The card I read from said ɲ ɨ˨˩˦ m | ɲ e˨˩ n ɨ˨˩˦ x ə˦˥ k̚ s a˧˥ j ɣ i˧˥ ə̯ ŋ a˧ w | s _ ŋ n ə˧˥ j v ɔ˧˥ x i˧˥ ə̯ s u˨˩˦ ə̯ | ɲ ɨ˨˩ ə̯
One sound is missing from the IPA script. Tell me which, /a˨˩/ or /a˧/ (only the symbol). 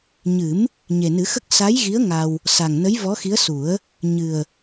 a˨˩